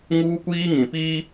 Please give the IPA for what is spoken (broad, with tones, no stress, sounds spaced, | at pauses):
ŋ uː˦ kʷ iː˦ ŋ ĩ˨ p i˦